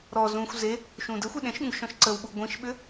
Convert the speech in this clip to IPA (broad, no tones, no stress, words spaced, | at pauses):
ɾɔ zũxʷ ze | ʃũdəxʷe ɗẽʃɠũɡʃɔ̃ʃ ǀəw ɓuɡʷĩʃɓʏ